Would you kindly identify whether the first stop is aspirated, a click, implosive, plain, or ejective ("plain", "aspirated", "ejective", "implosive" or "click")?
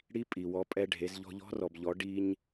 ejective